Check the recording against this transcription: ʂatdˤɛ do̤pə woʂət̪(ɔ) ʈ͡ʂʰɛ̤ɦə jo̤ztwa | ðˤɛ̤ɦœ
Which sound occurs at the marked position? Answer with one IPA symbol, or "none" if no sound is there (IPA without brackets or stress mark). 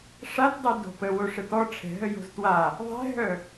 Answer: ɔ